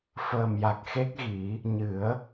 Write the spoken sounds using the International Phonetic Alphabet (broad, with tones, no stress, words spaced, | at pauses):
fəː˨˩mja˨˩k̚xe˦˥k̚ɣi˨˩˦ | ɲɨ˨˩˦ə̯